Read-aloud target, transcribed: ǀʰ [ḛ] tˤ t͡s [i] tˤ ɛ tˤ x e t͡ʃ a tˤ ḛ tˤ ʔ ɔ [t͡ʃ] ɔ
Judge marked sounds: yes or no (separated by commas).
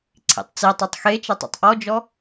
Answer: no, yes, no